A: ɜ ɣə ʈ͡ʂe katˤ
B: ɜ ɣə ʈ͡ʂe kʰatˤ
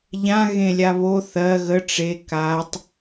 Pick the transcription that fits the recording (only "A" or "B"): A